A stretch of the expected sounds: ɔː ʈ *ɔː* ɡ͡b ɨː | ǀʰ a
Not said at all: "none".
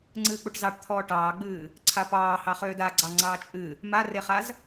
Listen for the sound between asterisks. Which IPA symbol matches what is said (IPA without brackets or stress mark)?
ɑː